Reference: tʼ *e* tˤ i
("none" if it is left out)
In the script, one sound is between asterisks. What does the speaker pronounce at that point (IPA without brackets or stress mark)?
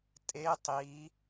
e